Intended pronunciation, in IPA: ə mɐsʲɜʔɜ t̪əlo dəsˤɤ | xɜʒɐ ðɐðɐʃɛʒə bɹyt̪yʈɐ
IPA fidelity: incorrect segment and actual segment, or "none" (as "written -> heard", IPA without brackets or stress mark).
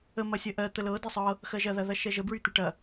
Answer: o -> ɤ